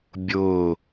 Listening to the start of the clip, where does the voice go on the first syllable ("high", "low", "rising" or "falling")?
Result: falling